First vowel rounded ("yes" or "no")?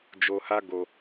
yes